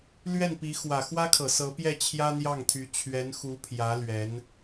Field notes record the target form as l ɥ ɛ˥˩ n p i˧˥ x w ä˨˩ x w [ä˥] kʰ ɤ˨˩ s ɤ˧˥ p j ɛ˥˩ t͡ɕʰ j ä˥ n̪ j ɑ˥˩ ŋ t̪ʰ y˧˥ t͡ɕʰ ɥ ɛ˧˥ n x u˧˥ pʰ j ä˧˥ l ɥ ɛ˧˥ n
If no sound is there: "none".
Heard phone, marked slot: ä˥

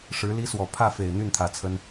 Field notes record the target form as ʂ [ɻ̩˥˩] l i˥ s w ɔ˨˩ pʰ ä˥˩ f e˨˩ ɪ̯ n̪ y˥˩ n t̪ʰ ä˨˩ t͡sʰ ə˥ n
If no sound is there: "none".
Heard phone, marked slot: ɻ̩˧˥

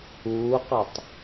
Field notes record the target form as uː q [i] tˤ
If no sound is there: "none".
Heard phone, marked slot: i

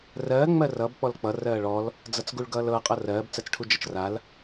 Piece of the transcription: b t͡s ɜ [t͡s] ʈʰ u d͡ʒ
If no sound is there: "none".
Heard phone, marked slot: t͡s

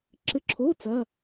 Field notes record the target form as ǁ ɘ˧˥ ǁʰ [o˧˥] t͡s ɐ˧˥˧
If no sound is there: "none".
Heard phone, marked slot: o˧˥˧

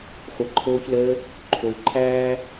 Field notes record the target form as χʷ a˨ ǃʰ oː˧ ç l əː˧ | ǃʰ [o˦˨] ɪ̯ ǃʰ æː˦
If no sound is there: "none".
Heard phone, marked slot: o˨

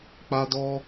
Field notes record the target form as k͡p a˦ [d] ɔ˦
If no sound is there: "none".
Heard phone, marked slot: d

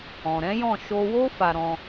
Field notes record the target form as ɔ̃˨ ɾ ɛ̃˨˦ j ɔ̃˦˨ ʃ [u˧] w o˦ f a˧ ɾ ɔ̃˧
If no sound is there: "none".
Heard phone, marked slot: o˧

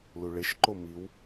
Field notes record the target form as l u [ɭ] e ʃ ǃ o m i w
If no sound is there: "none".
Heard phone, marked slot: ɭ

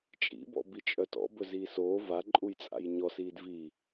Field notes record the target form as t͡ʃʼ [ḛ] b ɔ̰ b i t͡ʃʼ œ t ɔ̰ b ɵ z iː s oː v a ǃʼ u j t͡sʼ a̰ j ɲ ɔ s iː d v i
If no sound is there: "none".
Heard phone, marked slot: ḭ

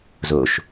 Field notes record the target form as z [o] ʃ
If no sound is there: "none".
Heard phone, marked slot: o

